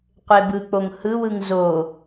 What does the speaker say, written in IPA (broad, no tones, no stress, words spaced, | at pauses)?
qʷebɯk͡poŋ hɯwɯŋ zo